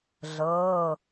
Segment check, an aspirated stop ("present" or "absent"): absent